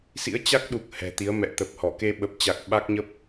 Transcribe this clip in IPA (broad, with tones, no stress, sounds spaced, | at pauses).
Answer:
s ḭ˧˥ ə̯ t͡ɕ a˦˥ k̚ ɗ u˨˩ k̚ h ɛ̤˨˩ t̪ i˨˦ ə̯ m ɛ̰˧˨ t̪ ə˨˩ p̚ h ɔ˧˩ k e˧ ɓ ə˨˩ p̚ t͡ɕ a˨˩ k̚ ɓ a˦˥ k̚ ɲ ə˦˥ p̚